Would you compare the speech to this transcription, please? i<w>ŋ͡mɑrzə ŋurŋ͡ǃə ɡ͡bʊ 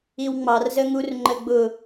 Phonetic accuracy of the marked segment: correct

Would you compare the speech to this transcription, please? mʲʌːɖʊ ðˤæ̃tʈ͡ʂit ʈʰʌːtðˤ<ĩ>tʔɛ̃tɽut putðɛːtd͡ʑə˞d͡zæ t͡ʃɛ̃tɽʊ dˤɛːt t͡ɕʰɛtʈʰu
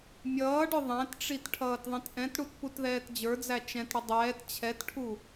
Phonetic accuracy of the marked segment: correct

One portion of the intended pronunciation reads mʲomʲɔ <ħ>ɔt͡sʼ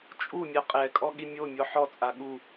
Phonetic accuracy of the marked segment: correct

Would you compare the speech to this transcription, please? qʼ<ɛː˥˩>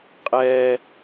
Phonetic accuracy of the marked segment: incorrect: ɛː˥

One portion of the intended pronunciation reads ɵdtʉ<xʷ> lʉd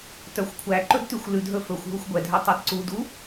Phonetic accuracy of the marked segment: correct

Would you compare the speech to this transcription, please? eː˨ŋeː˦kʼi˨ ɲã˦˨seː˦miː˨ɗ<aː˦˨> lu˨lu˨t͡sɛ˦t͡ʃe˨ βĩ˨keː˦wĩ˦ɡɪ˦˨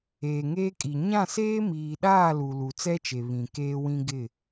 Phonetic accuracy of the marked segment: correct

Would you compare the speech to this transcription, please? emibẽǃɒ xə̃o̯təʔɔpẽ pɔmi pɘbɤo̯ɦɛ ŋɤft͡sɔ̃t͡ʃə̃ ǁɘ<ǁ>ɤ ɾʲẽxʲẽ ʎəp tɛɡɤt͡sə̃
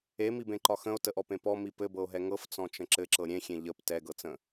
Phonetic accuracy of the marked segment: correct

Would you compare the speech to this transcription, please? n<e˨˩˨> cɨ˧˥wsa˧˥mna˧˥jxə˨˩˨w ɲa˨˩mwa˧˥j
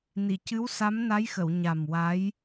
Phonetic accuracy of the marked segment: incorrect: i˨˩˨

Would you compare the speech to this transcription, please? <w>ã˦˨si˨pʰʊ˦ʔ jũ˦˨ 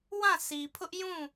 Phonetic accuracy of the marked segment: correct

